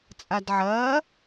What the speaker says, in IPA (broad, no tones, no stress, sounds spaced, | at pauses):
t͡sʼ a d ʕ ɐː